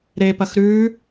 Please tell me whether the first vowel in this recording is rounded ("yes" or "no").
no